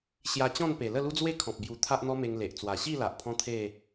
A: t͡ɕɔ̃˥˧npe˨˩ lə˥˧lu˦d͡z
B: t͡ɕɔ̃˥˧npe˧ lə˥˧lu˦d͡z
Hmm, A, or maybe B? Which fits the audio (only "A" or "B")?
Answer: A